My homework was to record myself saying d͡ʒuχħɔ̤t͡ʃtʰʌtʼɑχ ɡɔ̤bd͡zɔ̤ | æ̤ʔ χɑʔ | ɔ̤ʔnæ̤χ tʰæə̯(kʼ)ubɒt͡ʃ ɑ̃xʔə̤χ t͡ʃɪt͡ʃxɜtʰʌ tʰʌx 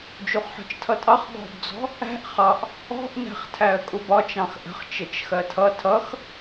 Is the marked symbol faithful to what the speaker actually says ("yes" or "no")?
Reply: yes